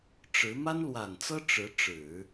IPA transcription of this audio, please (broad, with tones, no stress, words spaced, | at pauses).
ʈ͡ʂɻ̩˧˥ ma˥nlwa˨˩nt͡sɤ˥ ʈ͡ʂɻ̩˧˥ʈ͡ʂɻ̩˨˩˦